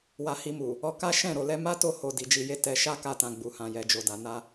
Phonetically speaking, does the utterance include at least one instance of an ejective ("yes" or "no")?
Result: no